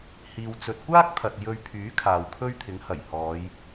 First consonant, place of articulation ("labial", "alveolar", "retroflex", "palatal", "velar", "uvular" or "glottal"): glottal